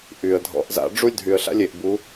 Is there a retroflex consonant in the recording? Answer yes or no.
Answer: yes